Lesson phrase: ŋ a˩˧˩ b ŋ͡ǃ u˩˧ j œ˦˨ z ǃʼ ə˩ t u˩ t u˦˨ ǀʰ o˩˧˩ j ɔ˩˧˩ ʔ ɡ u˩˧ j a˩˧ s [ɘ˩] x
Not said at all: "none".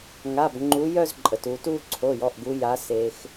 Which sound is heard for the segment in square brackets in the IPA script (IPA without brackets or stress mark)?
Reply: e˩